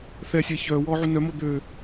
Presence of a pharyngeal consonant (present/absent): present